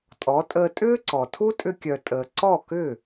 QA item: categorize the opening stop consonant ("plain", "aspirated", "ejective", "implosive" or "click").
ejective